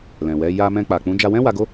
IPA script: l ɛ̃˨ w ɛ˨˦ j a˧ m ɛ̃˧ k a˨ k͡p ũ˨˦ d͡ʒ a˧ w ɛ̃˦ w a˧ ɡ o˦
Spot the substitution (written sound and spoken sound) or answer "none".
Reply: k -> k͡p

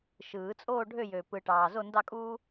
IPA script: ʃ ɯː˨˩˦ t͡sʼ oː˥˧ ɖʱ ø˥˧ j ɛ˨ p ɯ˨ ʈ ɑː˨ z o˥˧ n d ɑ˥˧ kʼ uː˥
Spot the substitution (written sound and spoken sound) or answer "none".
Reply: ɛ˨ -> ø˨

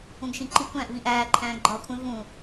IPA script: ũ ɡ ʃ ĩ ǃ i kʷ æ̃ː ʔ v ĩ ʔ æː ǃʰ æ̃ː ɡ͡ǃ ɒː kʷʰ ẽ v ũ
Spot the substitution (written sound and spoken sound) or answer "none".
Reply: none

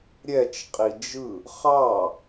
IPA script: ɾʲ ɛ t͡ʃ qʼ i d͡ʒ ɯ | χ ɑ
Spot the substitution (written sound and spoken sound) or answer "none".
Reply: none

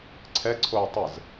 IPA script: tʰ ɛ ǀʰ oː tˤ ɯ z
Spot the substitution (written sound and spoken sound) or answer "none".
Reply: tʰ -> ǀʰ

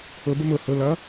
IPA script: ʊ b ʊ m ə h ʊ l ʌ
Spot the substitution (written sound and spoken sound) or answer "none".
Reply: ə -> ʊ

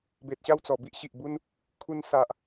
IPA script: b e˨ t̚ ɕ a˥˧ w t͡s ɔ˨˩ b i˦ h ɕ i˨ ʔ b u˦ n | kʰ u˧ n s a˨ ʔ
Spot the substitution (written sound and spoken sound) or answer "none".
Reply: h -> ʔ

